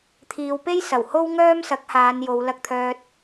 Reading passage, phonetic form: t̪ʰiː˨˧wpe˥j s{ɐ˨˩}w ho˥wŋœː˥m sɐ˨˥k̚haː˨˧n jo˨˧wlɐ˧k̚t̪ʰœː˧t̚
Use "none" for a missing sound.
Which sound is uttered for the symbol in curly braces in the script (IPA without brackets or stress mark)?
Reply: ɐ˨˩